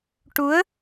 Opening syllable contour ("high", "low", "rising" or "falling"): rising